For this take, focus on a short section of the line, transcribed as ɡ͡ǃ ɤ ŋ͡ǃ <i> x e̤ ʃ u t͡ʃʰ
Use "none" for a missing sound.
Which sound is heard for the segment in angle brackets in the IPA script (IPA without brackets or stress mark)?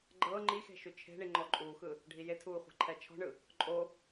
i